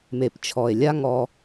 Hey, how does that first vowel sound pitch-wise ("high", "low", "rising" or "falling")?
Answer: low